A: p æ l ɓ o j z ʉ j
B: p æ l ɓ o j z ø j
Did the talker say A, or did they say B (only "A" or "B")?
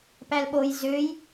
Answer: B